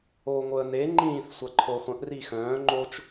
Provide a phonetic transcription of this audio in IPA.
oːŋʷəːne ŋ͡ǃĩːθ sʷaǃʰoːχʷœ̃ʔ rixœ̃ː ŋ͡ǃot͡ʃ

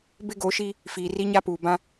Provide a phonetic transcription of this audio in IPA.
bɪ˦ɡo˨˦ʃi˦ | fiː˨ ri˦ɲa˦puː˨ bã˦

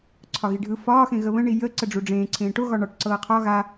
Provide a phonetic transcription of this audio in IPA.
ǀʰɒɣiɖʱɯ fɒː xẽɣəβə̃ ɳijə ǀəɖ͡ʐuɖ͡ʐẽː ǀʰẽːʈo ɣɒɳɒʈ ǀɤːqʰɒ ɣa

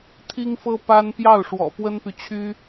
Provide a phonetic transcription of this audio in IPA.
t̪ʰi˥ŋfɤ˥ pa˥n pjɑ˥˩ʊ̯ʂwɔ̰˨˩ pwə˥npy˨t͡ɕʰy˥

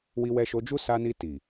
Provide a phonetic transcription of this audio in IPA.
wi˧wɛ˧ʃo˧d͡ʒu˦ sa˧ni˧ ti˨

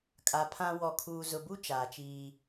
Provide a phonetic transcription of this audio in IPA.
kʼa˨ pʰã˦ wɔ˨kʰuː˨zʊ˨bu˦ t͡ʃaː˨t͡ʃiː˦

